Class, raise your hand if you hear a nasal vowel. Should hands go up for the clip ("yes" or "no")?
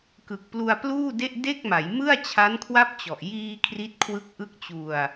no